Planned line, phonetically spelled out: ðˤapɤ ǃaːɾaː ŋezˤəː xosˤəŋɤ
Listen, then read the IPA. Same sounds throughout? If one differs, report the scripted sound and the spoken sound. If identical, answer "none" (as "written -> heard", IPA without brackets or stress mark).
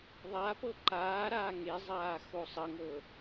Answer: əː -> aː